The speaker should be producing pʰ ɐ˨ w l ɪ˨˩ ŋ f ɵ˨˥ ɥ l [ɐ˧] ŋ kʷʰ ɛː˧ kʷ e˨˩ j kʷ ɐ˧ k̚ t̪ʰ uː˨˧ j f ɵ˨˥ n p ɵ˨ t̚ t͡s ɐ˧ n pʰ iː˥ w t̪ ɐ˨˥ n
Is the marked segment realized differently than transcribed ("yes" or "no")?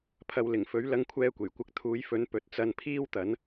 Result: no